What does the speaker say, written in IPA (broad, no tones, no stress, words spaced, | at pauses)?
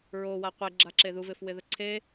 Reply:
ɹowa qʷeɡ͡ǁaǁe ðuvɪfwɪðə ǀʰe